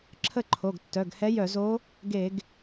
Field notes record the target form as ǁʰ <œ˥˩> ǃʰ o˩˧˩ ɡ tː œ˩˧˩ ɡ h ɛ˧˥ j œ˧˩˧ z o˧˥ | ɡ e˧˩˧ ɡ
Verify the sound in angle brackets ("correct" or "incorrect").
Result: incorrect